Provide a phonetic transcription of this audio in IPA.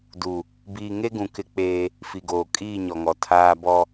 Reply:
d u˨ | b iː˨ ŋ e˦ ɡ ũ˨ k ɪ˦ k͡p eː˦ | f i˨ ɡ oː˨ kʼ iː˦˨ ɲ ɔ˨ ŋ ɔ˨ tʰ aː˦ b ɔ˦

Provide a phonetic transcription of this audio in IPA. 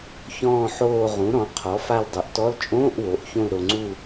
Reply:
ç ɔ̃ː˦˨ ħ oː˦˨ ʁ ũ˩˥ ɾ ɔ̃˩˥ qʰ ɔ˩˥ f a˦˨ l dˤ u˩˥ ʔ t ɔ˧˥˧ l t͡ʃʼ õː˧˥˧ ʔ w o˩˥ ʔ ç õ˦˨ l ɾ o˨ ŋ͡ǀ u˦˨

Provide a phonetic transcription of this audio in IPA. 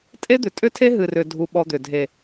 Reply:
tʼ e˦ d̪ ʏ˨ tʼ ʏ˦ tʰ e˦ ɦ ɨ˨ r ʏ˨ dʱ u˧ ɓ ɔ˧ d̪ ʏ˨ dʱ e˨

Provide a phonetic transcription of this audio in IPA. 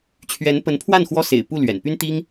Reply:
t͡ɕʰ ɥ ɛ˧˥ n p ə˧˥ n pʰ w a˥˩ n x w ɔ˥ s ḛ˨˩ ɪ̯ p u˥˩ l ɥ ɛ̰˨˩ n p y˥ n t̪ i˥ ŋ

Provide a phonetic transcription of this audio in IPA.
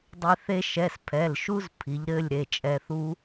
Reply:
dˤ e˧ θ e˧ ʃ ɛ˩˧˩ s pʰ ɛ˩˧˩ l ʃ u˦˥ z pʰ i˩˧ ʎ ɾ ɘ˩˧˩ lʲ ɾ e˩˧˩ t͡ʃʼ ɛ˧ θ u˦˥

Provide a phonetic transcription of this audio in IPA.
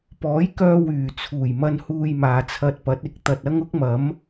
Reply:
p ɔː˨˥ j k œː˧ w yː˨˩ t͡sʰ uː˨˩ j m ɐ˧ n h uː˧ j m aː˨ t͡sʰ ɐ˧ t̚ p ɐ˨˥ t̚ ɪ˨ k̚ t̪ ɐ˨ t̚ ɐ˥ ŋ ʊ˥ k̚ m ɐ˨˥ m

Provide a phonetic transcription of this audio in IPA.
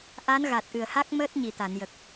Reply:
ʔ a˧˥ n ɣ a˨˩ t̚ ʔ ɨ˨˩ ə̯ h a˦˥ k̚ m əː˦˥ t̚ ɲ i˨˩ t̪ a˨˩˨ n j ə˨˩ k̚

